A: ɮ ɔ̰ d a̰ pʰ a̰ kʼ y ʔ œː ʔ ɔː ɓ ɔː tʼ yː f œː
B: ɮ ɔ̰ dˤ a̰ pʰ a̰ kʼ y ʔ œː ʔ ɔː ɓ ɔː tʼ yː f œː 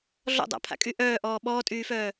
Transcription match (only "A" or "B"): B